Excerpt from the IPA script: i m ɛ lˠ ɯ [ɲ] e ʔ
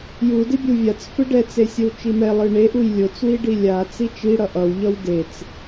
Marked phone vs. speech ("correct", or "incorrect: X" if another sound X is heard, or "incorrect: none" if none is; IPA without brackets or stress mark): incorrect: ɳ